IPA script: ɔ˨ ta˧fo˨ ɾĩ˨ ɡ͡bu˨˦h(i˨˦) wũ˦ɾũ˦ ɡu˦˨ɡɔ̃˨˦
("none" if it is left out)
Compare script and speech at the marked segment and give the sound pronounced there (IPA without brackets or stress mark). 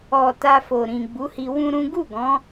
i˧